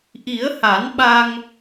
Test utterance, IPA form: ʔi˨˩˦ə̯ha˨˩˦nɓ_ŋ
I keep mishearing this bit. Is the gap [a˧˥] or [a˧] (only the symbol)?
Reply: a˧